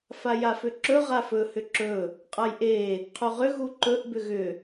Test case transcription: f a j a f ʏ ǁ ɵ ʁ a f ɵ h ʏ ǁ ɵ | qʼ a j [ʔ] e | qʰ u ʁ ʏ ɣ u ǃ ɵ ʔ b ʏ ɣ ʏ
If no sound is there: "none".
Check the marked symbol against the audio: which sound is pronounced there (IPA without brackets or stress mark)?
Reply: ʔ